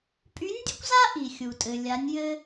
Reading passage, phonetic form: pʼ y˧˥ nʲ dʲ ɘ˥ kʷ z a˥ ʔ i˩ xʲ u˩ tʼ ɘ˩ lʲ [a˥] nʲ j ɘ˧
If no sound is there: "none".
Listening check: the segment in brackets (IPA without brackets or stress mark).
a˩˧